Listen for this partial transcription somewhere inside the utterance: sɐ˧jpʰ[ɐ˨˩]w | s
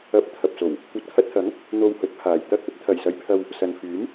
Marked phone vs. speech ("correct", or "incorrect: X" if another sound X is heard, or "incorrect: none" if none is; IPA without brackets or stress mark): incorrect: ɐ˧